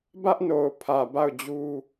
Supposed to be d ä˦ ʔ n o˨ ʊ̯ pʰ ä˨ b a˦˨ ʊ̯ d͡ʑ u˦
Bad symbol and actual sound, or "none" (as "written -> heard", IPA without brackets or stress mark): d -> b